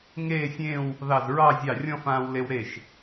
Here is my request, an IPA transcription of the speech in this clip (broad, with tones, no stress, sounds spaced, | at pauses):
ŋ eː˥˧ sʲ ẽː˥˧ w | ð ɑ˧˩ z ɹ ɑ˥˧ zʲ ɑ˧˩ rʲ ɔ̃˥˧ f ãː˧ w l e˧ w ɾ e˥˩ ʃ